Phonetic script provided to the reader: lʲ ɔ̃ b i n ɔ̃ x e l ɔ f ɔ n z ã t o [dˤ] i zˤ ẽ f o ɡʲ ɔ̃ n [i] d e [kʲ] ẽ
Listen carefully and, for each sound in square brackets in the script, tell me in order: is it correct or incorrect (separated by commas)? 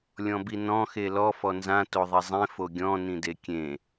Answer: incorrect, incorrect, correct